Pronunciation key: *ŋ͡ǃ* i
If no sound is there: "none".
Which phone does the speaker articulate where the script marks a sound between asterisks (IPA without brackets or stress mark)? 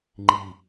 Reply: ŋ͡ǃ